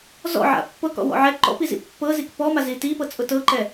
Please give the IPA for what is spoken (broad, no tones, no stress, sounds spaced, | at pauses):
z ɔ̰ ʕ a̰ pː ɤ k ɔ̰ w ɔ̰ ʕ ɛ ǃ ɔ̰ p i z ḭ pː ɤ z i k p ɔ m a z i t i p ɤ t͡sʼ ʊ t ɤ ǃ ɛ